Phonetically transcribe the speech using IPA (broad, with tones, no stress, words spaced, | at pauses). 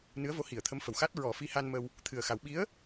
nɨ˧˥ə̯vo˧˥hi˨˩˨ə̯t̪ʰə˧˥m fə˨˩wxa˦˥t̚ ɹɔ˨˩˦fi˧˥ha˧nmə˧w | t̪ʰɨ˨˩ə̯xa˨˩˦w ɓi˧˥ə̯